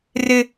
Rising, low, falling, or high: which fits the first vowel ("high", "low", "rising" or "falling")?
high